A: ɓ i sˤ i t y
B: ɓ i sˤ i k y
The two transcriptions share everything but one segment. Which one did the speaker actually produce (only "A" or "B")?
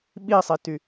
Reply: A